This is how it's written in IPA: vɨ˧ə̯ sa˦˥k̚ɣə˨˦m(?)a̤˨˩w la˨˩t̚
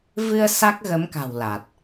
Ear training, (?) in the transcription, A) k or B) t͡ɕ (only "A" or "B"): A